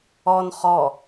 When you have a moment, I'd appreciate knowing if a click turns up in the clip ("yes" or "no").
no